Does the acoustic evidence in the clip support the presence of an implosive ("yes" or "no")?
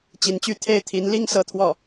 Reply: no